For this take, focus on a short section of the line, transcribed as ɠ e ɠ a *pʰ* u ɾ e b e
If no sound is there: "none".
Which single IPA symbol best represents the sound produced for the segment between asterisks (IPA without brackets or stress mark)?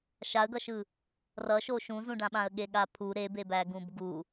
pʰ